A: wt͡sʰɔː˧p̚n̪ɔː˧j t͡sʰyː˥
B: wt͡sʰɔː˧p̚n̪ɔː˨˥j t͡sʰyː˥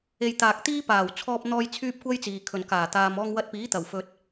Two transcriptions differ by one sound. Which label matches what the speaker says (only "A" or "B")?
A